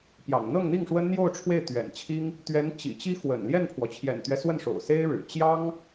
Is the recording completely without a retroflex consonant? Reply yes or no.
no